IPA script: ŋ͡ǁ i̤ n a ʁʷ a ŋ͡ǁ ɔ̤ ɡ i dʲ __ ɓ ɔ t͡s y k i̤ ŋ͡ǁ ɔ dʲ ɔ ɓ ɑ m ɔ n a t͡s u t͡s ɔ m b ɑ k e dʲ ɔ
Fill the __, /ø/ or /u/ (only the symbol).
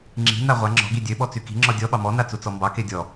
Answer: ø